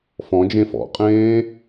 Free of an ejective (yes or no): no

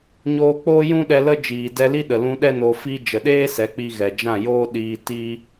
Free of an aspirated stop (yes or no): yes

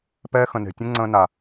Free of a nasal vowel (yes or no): no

